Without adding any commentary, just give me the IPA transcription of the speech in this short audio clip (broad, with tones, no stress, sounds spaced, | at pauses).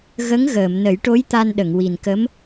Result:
ɣ ə˧˥ ŋ ɣ əː˨˩˨ m n ə˨˩˦ j ʈ o˧˥ j t̪ a˧ n ɗ ə˨˩˨ ŋ w i˨˩ n k ə˧˥ m